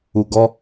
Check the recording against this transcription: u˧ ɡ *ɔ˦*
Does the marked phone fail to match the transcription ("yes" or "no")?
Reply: no